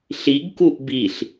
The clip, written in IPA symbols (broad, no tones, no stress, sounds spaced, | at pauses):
ɬ i ɡ k u ʔ b i ɬ